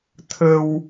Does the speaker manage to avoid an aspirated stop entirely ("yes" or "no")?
no